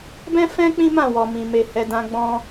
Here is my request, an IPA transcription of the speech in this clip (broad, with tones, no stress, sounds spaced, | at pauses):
b ɛ̃˦ f ɛ̃˦ k͡p ĩ˦ m ã˦˨ w ɔ˨ m ĩ˨ m e˨ h ɛ˨ d ã˧ ɡ͡b ɔ̃˦